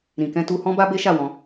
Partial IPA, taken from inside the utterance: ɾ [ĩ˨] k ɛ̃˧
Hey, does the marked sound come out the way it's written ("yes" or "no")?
yes